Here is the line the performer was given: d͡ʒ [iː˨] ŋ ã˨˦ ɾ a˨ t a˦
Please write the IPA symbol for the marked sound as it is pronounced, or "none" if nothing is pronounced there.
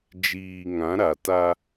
iː˨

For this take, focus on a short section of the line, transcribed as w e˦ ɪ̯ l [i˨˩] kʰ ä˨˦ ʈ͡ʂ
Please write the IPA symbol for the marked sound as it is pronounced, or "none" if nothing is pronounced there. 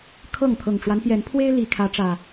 i˨˩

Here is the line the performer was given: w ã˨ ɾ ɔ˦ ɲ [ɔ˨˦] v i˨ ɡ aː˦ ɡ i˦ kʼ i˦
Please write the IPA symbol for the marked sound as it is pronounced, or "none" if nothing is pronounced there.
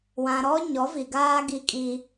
ɔ˨˦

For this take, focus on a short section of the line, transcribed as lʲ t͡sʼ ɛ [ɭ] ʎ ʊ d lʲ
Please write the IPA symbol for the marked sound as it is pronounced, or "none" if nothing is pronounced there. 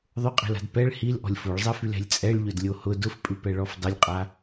ɭ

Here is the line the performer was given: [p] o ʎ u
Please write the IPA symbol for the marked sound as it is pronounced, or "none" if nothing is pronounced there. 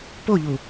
p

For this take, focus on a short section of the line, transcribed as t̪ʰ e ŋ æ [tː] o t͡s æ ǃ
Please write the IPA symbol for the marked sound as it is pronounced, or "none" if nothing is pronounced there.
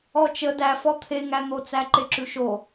n̪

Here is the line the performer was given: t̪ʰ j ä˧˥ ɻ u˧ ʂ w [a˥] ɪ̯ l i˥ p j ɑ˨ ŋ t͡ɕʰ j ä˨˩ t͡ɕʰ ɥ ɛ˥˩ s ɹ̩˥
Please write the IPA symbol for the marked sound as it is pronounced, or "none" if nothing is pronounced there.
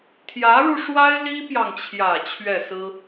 a˥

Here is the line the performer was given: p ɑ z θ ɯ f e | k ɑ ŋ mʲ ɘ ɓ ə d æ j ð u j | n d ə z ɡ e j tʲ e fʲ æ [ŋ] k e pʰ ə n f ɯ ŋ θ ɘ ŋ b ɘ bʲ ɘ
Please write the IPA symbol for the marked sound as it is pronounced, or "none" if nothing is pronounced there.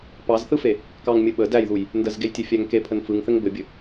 ŋ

